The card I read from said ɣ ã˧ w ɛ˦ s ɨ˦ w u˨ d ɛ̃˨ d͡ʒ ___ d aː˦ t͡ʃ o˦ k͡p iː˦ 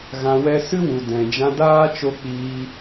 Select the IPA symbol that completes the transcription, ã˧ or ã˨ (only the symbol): ã˧